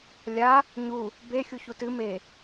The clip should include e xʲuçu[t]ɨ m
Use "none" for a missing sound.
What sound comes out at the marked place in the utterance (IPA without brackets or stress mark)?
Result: t